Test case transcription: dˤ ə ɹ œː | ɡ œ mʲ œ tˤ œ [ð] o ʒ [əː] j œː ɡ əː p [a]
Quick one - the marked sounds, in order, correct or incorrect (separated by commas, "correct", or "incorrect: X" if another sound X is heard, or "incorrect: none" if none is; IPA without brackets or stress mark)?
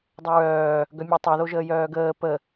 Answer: correct, correct, incorrect: ə